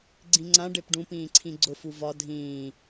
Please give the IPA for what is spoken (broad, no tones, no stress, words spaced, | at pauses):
ɡ͡ǀĩŋ͡ǀã ɖepɖũ pĩːǀʰĩɡ͡ǀʊ fuvɒ dʱĩː